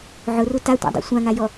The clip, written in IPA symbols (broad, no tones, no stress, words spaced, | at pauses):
ʕʊru tatʷa̰dˤṵ sʷãŋajɔ